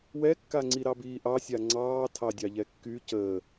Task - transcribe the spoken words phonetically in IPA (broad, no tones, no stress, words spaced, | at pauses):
wɛkːaŋ͡ǀi ɾɑbiːʔɑsʲa ŋ͡ǀɑː tʰɑdʲɑʎɛkːy cəː